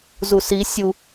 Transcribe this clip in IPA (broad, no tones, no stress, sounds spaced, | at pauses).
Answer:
z u s i sʲ u